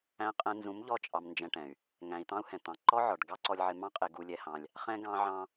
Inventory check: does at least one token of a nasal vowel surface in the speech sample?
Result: yes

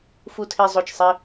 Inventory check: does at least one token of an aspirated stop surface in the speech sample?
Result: yes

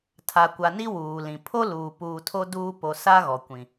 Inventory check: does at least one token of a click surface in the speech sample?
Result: no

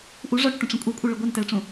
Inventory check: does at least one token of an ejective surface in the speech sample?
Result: yes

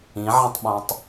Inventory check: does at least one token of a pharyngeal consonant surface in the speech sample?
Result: yes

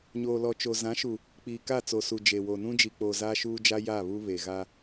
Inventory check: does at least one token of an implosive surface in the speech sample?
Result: no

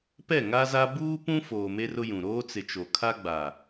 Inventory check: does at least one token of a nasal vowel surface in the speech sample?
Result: yes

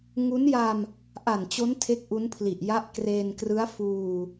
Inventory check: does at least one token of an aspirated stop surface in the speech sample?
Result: yes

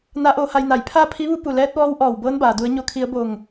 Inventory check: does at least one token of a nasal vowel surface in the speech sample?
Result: no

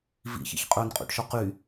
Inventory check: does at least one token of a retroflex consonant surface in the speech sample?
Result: yes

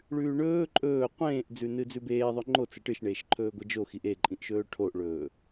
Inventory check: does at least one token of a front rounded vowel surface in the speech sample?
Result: no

